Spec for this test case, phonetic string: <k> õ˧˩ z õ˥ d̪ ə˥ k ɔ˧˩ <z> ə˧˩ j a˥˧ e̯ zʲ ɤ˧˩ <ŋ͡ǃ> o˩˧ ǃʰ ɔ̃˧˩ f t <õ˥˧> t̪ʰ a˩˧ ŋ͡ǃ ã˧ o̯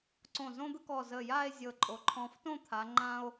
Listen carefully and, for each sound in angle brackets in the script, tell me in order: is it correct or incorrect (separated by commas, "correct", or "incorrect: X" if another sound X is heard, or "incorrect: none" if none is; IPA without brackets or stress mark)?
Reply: incorrect: ǀ, correct, incorrect: ǃʼ, correct